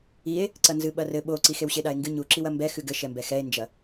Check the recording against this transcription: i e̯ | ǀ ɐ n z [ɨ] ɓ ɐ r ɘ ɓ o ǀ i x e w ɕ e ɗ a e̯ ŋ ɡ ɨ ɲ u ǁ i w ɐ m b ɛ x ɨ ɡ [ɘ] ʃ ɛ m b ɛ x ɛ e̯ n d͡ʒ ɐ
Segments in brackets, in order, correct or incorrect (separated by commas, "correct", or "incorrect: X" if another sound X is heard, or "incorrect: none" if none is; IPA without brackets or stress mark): correct, correct